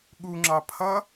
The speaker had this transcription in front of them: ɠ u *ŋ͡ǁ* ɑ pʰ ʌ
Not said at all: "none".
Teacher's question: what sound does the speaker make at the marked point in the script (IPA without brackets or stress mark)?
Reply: ŋ͡ǁ